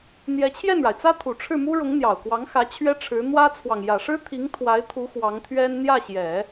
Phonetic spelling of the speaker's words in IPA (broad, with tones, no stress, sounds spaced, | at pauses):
n̪ j ɛ˧˥ t͡ɕʰ j ɛ˥˩ n ɻ a˩ ɪ̯ t͡s ä˥ t̪ʰ u˨˩ ʈ͡ʂʰ ɻ̩˥˩ m u˥ ɻ ʊ˧˥ ŋ n̪ j ɑ˨˩ ʊ̯ k w ɑ˧˥ ŋ x ä˧˥ t͡ɕʰ ɥ ɛ˥ ʈ͡ʂʰ ɻ̩˧˥ n̪ w ä˥ t͡sʰ w ɑ˨ ŋ j ä˨˩ ʂ ɻ̩˥ t̪ʰ i˧˥ ŋ t̪ʰ w a˧˥ ɪ̯ t̪ʰ u˧˥ x w ɑ˧˥ ŋ t̪ʰ ɥ ɛ˥ n n̪ j ä˥˩ ɕ j ɛ˨˩˦